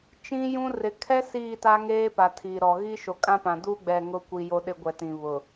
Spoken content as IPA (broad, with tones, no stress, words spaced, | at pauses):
t͡ʃĩ˦jũ˦ rɪ˨ kʰɛ˦ siː˦˨ta˦ŋeː˦ pa˨tʰiː˨ɾɔ˨ ɣi˦ʃo˨kʼã˦pã˨ duː˦ ɡ͡bɛ˦˨ŋʊ˦kʷi˨ jo˦ɗɪ˦ ɡʷɛ˨tĩ˨ βʊ˨